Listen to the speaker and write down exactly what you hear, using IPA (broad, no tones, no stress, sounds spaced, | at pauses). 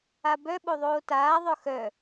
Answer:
a b œ ɓ o ðˤ oː t aː ðˤ œ x œ